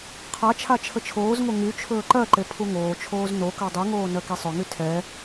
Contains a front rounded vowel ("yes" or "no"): yes